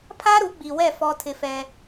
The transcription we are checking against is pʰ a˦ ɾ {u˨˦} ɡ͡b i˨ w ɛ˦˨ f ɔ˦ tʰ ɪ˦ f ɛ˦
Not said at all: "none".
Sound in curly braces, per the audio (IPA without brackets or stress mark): u˨˦